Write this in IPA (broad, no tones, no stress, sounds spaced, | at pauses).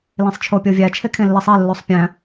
l ẽ sˤ t͡ʃʰ o pʲ o vʲ æ t͡ʃʰ e kʰ ẽ lː i sˤ e lː o sˤ pʲ æ̃